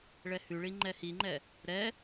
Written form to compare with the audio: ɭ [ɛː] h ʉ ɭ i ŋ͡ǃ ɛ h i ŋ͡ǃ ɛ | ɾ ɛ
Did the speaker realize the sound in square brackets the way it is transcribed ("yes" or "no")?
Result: no